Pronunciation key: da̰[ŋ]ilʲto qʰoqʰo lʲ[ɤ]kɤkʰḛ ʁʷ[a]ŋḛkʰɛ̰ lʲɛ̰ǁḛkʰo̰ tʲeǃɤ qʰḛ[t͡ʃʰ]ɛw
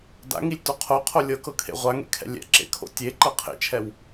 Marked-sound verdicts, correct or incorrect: correct, correct, correct, correct

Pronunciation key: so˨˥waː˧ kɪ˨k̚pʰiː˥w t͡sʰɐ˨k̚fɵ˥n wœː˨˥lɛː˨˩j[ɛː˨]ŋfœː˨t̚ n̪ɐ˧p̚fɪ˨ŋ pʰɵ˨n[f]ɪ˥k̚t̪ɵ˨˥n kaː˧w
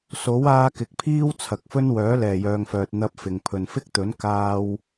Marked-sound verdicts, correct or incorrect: incorrect: œː˨, correct

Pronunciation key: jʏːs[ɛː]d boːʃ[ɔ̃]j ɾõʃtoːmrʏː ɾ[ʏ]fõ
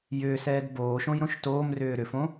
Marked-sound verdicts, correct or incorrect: correct, incorrect: õ, correct

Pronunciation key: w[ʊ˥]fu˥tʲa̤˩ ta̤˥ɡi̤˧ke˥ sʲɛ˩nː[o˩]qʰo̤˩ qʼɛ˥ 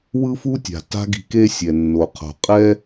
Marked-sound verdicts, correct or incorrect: incorrect: ɯ˥, correct

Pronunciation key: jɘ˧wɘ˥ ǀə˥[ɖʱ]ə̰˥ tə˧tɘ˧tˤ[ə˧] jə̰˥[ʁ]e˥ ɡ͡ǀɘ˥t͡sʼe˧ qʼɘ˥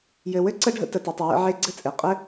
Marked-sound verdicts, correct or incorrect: correct, correct, incorrect: ʕ

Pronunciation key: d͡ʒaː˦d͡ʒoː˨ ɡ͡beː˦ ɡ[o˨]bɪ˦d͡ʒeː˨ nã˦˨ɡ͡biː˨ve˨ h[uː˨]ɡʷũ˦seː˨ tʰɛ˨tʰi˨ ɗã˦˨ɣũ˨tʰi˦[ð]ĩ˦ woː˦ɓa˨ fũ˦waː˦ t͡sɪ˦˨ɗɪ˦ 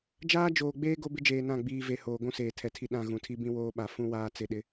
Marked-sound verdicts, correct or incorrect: incorrect: o˦, incorrect: oː˨, incorrect: b

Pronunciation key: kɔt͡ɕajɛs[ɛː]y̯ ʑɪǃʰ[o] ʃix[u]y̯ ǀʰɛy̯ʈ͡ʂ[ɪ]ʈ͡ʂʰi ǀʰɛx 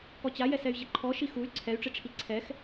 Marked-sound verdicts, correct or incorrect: incorrect: ɛ, incorrect: ɔ, correct, correct

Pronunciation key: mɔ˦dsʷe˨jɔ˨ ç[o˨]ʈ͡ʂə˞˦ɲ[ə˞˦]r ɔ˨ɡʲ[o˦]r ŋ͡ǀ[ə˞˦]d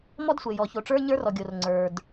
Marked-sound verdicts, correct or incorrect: correct, correct, incorrect: o˨, incorrect: ə˞˨

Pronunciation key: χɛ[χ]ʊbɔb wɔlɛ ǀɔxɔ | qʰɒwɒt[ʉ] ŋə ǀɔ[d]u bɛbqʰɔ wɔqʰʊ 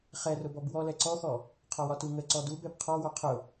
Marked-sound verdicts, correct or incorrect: incorrect: r, incorrect: u, correct

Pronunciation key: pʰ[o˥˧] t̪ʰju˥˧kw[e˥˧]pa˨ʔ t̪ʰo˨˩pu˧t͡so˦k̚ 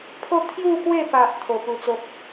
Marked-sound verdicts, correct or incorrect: correct, correct

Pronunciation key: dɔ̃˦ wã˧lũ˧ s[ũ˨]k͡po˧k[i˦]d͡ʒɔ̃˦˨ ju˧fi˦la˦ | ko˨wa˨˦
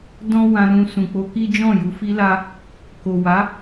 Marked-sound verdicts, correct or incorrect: correct, correct

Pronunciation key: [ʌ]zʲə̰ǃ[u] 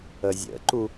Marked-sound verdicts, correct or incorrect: incorrect: ə, correct

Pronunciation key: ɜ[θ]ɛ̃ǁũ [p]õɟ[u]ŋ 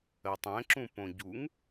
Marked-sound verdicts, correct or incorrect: incorrect: tˤ, correct, correct

